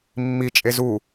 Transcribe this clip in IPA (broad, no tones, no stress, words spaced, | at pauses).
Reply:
mːit͡ʃʼe zu